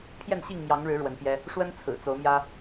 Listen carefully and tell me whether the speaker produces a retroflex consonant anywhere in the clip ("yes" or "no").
yes